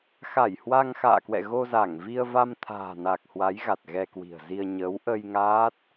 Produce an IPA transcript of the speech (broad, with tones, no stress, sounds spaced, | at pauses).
x a˧˩ j h w a˧ ŋ x a̰ː˧˨ k w ɛ̰˧˨ ɣ o˧ z a˧˩ ŋ v i˧ ə̯ v a˧ m t̪ʰ a̤ː˨˩ n a˨˩ k̚ h w a˨˦ j ɣ a˨˩ t̚ ɣ ɛ˧ k w i̤˨˩ ə̯ z i˧ ə̯ ɲ ə˨˦ w ʔ ə˧ j ŋ aː˦˥ t̚